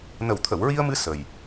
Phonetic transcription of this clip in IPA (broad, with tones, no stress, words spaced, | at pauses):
nə˨˩wt̪ʰə˨˩˨wɹi˧ə̯mɨ˧ sə˨˩j